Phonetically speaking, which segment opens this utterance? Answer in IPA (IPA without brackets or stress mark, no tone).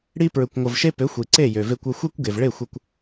ɽ